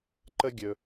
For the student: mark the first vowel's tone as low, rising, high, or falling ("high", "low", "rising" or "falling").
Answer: high